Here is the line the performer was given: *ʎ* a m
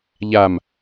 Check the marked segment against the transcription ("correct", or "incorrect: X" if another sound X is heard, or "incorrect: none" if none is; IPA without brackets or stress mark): correct